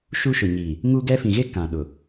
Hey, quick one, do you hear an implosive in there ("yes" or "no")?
yes